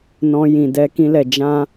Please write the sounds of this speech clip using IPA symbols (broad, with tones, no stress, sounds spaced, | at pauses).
n ɔ̃˧ j ĩ˨ d ɛ˨˦ k ĩ˧ l ɛ˨ d͡ʒ ã˧